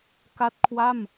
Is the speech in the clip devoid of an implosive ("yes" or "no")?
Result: yes